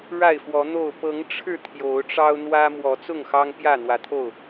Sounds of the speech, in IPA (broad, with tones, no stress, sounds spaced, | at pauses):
ɻ a˥˨ ɪ̯ f w ɔ˨˦ n̪ o˥˨ ʊ̯ p ɤ˨˦ ŋ ʈ͡ʂʰ ɻ̩˥˨ t̪ʰ j o˨˦ ʊ̯ ʈ͡ʂ ɑ˦ ʊ̯ n̪ w ä˦ m w ɔ˨˦ t͡s ʊ˥˨ ŋ x ɑ˦ ŋ p j ä˥˨ n̪ w ä˨˦ t̪ʰ o˥˨ ʊ̯